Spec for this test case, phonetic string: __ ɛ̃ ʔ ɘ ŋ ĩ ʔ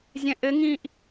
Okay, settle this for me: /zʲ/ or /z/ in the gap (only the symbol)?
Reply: zʲ